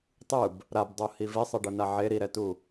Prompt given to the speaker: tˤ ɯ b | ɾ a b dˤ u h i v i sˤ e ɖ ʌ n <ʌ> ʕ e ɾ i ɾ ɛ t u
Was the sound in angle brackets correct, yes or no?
no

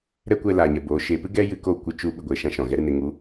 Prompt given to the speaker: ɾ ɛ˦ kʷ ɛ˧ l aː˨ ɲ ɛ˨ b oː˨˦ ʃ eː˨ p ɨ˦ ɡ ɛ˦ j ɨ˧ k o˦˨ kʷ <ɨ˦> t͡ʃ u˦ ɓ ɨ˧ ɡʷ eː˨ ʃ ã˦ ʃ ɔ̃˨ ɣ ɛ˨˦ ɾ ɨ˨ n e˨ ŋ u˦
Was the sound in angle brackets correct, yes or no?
yes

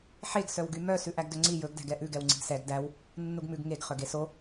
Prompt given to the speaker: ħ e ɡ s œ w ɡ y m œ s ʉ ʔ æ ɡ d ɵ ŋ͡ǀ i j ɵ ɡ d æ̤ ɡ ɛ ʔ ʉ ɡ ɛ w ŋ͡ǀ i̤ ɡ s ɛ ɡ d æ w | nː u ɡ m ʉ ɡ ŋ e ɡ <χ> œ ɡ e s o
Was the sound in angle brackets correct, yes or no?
yes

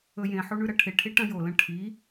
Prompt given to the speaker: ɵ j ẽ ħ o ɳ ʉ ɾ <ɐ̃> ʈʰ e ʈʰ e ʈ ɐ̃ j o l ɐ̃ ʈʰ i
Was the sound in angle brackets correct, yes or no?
no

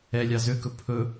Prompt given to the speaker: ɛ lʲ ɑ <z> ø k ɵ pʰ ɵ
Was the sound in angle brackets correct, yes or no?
yes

